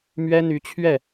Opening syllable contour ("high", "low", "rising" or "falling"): high